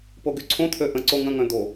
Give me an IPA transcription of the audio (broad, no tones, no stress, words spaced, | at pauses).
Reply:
poɡyǀʰõt̪ʰø ʔə̃ǀo ŋə̃ŋœ̃ d̪o